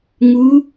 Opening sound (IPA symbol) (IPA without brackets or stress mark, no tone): ŋ